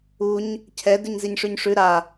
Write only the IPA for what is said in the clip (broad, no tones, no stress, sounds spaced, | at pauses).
u ɲ | cʰ ɛ d ʉ ɲ z i ɲ ʂ ʉ ɲ ʂ ʉ ɾ a